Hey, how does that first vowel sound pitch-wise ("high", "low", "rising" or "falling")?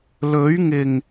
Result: rising